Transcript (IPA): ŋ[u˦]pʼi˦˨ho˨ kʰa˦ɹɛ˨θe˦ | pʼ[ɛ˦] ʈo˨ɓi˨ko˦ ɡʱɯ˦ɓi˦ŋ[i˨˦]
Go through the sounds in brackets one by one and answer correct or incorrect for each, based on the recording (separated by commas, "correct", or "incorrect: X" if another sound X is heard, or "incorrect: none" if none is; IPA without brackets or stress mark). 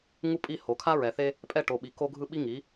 correct, correct, correct